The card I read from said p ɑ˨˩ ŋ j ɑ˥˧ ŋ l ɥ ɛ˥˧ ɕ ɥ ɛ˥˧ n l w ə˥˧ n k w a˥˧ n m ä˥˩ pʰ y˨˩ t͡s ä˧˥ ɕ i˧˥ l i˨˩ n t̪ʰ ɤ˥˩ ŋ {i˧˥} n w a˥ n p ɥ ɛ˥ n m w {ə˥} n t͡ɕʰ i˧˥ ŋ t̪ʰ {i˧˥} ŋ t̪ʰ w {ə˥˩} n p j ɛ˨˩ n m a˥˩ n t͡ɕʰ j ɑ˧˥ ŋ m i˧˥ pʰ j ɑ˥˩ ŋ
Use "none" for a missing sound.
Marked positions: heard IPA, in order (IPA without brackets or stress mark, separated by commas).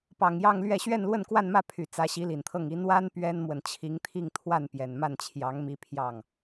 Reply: i˧˥, ə˨, i˥˧, a˥˩